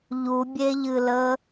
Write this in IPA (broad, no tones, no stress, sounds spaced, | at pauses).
ʎ u bʲ e ʎ ɨ l ə